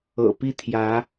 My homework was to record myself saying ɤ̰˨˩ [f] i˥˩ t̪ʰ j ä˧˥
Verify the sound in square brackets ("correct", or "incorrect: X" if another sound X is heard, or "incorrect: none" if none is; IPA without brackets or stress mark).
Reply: incorrect: p